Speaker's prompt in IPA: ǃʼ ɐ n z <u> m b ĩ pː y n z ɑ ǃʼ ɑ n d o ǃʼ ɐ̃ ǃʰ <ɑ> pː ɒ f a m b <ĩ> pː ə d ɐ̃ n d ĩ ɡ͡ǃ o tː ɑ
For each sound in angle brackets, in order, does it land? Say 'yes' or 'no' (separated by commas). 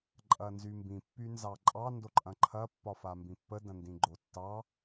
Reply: no, no, yes